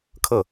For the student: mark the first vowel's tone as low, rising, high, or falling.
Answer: falling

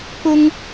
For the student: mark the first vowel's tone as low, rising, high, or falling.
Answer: high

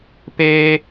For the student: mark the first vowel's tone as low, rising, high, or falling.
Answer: high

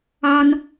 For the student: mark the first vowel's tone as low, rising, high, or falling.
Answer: high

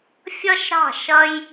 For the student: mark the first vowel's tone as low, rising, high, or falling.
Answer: high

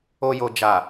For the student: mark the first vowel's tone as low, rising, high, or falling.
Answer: low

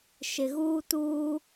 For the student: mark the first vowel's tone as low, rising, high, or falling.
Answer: low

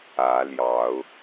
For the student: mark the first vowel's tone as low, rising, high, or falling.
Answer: rising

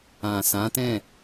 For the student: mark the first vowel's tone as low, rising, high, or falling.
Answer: low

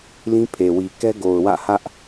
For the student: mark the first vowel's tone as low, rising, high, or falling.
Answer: high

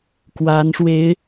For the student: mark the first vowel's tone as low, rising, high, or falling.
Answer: rising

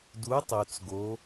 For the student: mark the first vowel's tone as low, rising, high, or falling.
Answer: rising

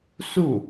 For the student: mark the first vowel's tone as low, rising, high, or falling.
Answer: falling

